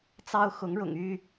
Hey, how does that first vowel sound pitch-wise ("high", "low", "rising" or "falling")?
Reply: high